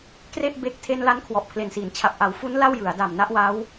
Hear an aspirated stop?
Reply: yes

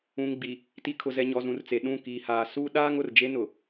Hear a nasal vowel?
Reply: yes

